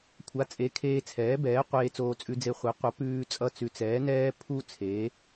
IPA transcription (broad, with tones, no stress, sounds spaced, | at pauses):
kʷʰ a˩˥ t͡sʼ e˩˥ kʰ eː˧ t͡sʰ ɛː˩˥ b ɛː˩˥ qʷ eː˧ t͡s oː˧ t͡sʼ ʉ˧ d͡z e˧ χʷ e˩˥ qʷ ʌ˩˥ p ʉː˧ t͡sʼ ʌ˧ t͡s ʉ˩˥ t͡s ɛː˩˥ n ɛː˧ pʰ u˧ t͡sʰ eː˩˥